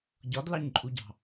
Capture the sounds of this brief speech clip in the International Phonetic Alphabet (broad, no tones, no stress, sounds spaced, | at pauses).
ɟ ɒ d l ɑ ɲ ǃʼ u ɟ ɑ̤